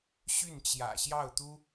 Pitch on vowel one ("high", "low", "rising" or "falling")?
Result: falling